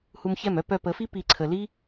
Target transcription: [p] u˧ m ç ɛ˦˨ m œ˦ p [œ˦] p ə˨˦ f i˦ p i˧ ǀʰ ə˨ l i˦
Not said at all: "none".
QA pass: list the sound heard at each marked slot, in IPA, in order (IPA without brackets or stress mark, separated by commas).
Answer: h, œ˧